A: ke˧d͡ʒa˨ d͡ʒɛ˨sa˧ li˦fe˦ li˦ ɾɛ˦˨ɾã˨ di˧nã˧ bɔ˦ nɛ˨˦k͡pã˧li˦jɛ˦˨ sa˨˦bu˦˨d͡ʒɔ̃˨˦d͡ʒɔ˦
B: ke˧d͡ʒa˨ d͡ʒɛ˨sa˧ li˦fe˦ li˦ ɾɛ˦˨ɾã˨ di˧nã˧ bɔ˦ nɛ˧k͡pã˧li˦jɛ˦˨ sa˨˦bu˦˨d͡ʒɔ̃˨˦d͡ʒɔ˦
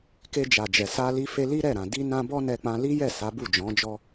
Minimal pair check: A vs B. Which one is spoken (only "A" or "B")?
B